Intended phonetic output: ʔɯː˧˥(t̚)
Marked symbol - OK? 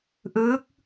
no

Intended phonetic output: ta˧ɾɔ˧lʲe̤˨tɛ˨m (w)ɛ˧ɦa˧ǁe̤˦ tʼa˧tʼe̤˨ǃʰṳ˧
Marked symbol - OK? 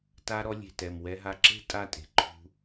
yes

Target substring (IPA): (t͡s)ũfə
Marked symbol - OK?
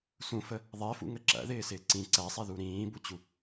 no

